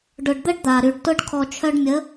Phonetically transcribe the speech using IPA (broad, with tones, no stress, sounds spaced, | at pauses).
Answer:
ɖ ʊ˨ ɖ d̪ ə˦ ɖ d̪ a˨ ɾ y˨ ɖ t ʊ˦ ɖ kʰ ɔ˨ t͡ʃʰ œ˧ ɖ mʲ ə˨˦